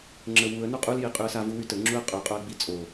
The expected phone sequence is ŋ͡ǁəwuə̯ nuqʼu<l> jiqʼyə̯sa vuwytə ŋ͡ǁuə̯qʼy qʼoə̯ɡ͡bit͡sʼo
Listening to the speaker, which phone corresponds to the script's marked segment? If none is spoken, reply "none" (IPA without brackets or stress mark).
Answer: l